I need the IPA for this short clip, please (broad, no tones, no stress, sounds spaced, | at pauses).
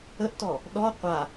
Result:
ə ʔ t ɔ | ɗ ɔ qʷ a